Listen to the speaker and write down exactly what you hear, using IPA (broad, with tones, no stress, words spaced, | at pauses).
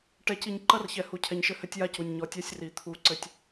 ʈɛ˨ci˨ɲ ǃɐ˦rçɛ˨ hu˨cʰɛ˨ɲʃɘ˦ hɘ˦tʲja˦cu˨nʲ ɲɔ˨tʲɛ˦sʲ ri˨t̪ʰu˦˨ǀɘ˦tʲ